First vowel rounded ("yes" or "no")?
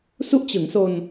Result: yes